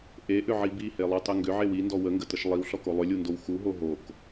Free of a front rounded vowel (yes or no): no